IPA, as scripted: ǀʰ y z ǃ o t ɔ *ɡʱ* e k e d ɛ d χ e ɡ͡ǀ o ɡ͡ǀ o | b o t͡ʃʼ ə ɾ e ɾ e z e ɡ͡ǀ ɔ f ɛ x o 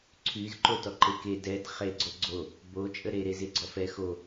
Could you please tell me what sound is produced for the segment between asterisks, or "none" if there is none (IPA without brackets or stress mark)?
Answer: ǃ